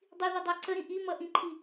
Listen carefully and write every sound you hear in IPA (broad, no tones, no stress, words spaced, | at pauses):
dˤiði dˤæǀəɾĩ ʔimʌ ʔĩǃʰi